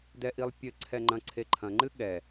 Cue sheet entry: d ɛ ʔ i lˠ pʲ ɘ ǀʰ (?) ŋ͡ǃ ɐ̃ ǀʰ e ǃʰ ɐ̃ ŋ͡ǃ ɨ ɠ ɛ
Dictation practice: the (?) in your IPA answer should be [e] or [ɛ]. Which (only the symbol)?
ɛ